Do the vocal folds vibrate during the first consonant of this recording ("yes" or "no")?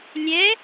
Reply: yes